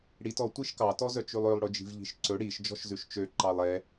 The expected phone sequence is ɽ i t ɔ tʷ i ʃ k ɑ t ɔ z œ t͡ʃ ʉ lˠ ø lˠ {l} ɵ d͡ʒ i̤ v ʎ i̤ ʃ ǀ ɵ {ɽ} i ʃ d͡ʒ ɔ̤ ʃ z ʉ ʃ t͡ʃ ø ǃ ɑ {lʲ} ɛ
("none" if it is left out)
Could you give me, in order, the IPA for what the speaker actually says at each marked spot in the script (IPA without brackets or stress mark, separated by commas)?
ɽ, ɽ, lˠ